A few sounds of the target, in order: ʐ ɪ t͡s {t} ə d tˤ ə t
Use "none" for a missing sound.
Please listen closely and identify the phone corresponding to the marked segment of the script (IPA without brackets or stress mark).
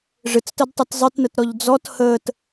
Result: t